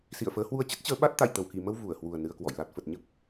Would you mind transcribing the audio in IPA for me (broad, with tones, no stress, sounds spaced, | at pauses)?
s ḭ˧˨ ə̯ f əː˨˦ h w u˧ ə̯ t͡ɕ ə˦˥ t̚ t͡ɕ əː˨˦ ɓ a˦˥ t̚ t̪ a̰˧˨ j t̪ ə˧˩ w k i˧˩ m ə˧ w v u˧˩ ə̯ h w u˨˩ ə̯ n ɨ˧ ə̯ k w ɔ̰˧˨ j l a˨˩ t̚ f ə˨˩ t̚ ɲ ə˦˥ p̚